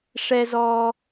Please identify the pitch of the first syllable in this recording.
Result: high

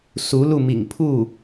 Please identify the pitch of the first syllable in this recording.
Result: rising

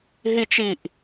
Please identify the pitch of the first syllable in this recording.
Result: high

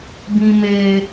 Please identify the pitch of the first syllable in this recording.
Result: low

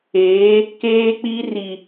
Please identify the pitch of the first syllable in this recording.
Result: rising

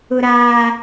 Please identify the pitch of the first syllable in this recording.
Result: high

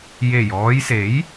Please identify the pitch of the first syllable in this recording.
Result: low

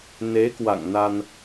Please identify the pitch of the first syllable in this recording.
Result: rising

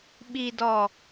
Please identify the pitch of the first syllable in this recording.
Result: low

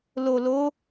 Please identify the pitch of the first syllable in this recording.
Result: low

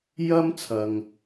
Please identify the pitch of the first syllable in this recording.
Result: high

